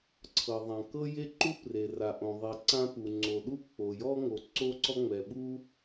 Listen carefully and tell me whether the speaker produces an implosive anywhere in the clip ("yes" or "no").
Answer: yes